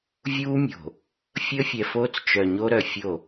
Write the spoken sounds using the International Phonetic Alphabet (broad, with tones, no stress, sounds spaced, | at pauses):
vʲ uː˦ mʲ o̤˨ | fʲ əː˦ fʲ ɛ˨ f oː˦ t͡s t͡ʃ œ˨ ɲ o˦ ɾ œ˨ fʲ o˦˨